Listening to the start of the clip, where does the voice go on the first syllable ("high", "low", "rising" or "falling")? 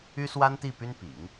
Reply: high